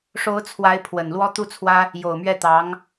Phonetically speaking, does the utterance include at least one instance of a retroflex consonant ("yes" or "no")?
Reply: yes